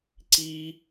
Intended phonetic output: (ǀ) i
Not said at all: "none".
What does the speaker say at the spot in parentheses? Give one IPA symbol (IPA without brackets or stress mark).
ǀ